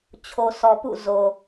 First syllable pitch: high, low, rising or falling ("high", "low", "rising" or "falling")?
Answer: low